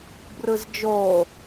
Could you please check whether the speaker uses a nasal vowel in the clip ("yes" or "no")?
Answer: no